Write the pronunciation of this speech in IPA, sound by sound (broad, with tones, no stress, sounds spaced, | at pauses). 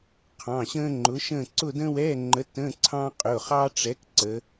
qʰ ɑ̃˩˧˩ ɕ ə̃ː˥ ŋ͡ǃ ʊ˨˥ ʃ ə̃ː˥˧ ǀ ʊ˥˧ d ə̃ː˥ w ɛ˧˥˧ ŋ͡ǃ ə˨˥ t ə̃˧˥˧ ǀʰ ɑ̃ː˥ qʼ ʊ˩˧˩ χ ɑ˥ ʈ͡ʂ ɛ˨˥ k ǀ ə˩˧